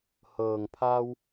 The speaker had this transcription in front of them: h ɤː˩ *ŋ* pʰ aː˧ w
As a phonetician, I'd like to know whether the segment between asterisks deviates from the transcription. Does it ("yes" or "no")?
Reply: no